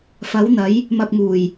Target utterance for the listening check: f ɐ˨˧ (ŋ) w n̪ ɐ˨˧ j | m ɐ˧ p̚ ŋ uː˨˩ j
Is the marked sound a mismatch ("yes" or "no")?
yes